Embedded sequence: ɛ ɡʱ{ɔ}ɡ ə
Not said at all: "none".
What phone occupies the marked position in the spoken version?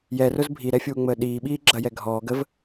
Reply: ɔː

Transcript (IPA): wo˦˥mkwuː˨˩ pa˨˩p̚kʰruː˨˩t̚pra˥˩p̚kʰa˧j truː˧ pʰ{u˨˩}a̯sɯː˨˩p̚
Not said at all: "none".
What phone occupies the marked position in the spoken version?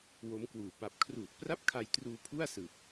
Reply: u˥˩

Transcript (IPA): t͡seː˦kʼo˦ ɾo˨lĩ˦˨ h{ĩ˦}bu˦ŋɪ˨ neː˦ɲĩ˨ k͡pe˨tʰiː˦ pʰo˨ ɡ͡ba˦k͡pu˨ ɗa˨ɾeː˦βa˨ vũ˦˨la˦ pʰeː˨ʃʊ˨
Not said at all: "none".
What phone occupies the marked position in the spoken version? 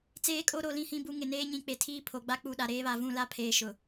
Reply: ĩ˦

